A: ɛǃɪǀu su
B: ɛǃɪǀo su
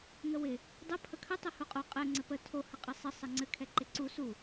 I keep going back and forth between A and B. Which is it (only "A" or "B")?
A